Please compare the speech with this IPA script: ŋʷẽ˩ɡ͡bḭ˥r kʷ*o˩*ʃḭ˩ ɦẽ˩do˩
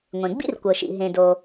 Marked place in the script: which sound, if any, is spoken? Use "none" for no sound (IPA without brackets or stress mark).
ɤ˩